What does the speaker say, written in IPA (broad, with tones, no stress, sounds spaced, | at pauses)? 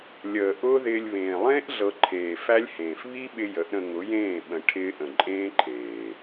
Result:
lʲ əː˨ ʔ ʊː˦ ð ɪː˧ lʲ β ẽː˨ lˠ ẽː˦ ʔ ɮ ɤ˧ ǃʰ eː˨ f æ˦ lʲ h ẽː˨ f β i˦ ɓ ɪ˧ j ə˨˦ ʔ ɾ ə̃˧ ŋ ʊ˨˦ j ẽː˦˨ ɓ ə̃˨ ʈʰ ɪː˧ ʔ ə̃˨ ǃʼ ẽː˦ ǃʰ eː˨